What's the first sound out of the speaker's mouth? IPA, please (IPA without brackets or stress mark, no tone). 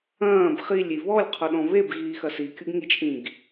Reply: ɐ̃ː